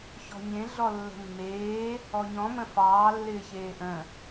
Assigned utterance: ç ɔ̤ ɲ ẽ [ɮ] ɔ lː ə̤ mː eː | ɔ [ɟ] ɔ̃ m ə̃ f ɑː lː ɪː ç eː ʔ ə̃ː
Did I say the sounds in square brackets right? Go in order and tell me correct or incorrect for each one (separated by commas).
correct, incorrect